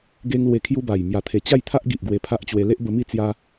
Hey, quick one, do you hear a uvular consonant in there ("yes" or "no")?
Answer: no